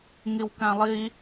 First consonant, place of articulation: velar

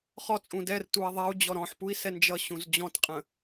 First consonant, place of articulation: uvular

